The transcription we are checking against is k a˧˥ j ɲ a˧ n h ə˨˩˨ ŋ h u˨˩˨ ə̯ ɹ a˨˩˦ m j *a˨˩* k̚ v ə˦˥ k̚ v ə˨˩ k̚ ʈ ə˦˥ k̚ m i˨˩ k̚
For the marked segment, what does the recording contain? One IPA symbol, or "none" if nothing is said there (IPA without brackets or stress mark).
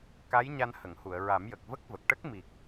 ə˨˩